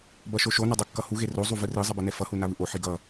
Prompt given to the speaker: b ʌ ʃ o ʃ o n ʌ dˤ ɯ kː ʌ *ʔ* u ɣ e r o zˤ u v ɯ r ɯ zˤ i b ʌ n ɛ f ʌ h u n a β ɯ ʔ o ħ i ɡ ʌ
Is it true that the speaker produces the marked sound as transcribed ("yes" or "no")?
no